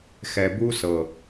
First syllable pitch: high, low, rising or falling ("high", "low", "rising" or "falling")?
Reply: low